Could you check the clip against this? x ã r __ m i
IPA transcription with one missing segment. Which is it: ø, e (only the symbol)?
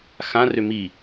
ø